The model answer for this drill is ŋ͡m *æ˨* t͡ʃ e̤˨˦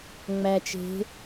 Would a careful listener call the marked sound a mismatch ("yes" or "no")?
no